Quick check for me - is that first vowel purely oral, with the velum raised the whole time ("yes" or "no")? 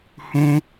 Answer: no